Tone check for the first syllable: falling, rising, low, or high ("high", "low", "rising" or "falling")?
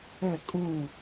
falling